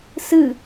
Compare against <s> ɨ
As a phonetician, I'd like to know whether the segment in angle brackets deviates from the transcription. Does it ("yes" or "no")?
no